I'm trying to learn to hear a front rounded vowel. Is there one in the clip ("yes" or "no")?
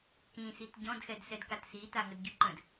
yes